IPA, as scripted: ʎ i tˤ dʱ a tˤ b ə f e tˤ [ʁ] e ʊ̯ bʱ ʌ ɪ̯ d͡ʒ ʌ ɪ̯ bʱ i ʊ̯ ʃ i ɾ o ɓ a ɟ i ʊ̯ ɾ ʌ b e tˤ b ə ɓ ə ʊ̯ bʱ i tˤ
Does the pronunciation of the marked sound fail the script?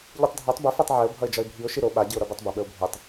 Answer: yes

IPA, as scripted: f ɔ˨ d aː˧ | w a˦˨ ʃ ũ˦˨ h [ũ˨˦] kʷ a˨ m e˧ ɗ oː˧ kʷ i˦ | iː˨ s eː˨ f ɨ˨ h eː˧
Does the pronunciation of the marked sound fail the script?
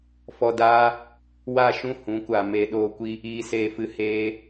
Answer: no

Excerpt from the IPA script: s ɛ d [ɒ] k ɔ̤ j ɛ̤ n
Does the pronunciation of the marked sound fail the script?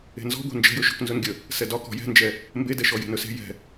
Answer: no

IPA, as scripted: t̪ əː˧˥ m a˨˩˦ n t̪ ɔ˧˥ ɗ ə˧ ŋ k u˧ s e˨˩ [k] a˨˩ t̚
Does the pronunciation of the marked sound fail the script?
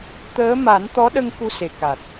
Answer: no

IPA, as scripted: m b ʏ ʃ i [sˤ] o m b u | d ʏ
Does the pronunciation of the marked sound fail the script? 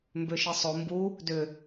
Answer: no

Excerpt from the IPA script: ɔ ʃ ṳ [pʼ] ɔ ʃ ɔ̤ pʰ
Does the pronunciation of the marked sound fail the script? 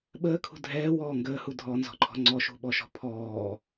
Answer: yes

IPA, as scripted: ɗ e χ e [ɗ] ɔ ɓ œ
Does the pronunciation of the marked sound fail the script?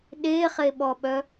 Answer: yes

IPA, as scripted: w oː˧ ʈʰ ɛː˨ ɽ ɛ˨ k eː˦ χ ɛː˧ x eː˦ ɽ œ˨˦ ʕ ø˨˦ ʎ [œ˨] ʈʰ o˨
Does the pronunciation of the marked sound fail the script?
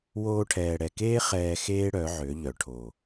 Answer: no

